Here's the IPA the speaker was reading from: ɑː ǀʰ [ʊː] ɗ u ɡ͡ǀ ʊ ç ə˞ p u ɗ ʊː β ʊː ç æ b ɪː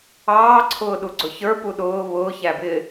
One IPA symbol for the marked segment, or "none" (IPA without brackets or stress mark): ʊː